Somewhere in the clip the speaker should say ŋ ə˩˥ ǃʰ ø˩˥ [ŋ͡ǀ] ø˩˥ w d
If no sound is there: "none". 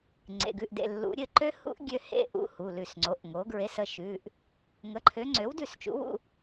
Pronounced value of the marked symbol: ŋ͡ǀ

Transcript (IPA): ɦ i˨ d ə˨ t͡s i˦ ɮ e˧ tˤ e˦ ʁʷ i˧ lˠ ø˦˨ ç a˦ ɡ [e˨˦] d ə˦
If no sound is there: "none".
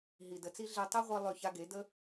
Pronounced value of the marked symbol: e˨˦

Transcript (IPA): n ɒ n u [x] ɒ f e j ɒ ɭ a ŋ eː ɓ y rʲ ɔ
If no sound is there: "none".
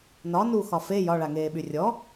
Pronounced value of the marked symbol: x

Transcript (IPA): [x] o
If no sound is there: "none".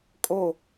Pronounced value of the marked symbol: kʼ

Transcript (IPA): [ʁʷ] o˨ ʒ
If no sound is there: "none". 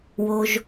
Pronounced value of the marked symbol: w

